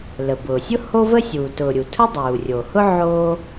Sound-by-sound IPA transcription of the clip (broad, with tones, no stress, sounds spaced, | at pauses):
l ə˩ b ʊː˩ sʲ ʊ˥ h o˥ v ə˥ sʲ uː˩ t ʊː˩ ɾʲ u˩ tʰ ʊ˥ dˤ uː˩ rʲ o˩ h ʊ˥ ʕ oː˥